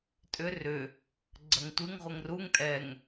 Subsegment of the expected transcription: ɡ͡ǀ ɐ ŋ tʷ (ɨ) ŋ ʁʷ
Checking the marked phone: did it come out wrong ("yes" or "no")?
no